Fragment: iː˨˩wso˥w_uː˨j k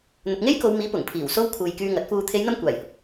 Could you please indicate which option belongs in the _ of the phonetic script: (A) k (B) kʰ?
B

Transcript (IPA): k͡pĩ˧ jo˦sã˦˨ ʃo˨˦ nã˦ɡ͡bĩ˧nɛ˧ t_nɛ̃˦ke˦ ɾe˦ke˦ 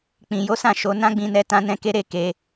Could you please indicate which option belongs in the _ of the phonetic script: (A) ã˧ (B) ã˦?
B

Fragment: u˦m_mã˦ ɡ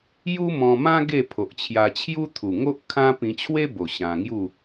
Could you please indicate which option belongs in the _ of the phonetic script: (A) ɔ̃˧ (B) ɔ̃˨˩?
A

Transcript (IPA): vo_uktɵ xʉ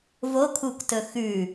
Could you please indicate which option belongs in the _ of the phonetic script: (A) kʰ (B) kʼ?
A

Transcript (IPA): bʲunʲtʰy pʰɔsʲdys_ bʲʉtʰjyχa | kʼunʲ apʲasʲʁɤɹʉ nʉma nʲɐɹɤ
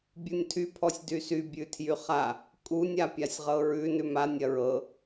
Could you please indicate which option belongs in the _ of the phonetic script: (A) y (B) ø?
A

